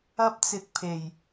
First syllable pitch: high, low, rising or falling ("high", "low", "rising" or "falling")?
high